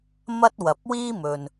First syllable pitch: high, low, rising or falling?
high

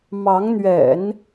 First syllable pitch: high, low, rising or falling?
rising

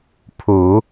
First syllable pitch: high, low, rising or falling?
low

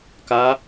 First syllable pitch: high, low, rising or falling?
rising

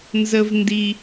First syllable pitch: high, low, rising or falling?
high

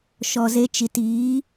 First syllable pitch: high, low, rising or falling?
low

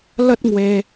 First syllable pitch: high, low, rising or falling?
high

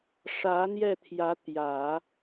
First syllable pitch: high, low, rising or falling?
rising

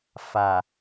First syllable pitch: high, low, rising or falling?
low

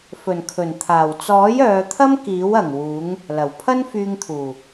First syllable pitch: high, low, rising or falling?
low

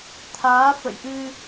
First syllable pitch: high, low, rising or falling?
rising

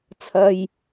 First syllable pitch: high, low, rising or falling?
low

